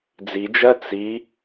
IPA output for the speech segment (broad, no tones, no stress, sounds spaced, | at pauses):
d͡z i d͡ʒ ɜ t͡s i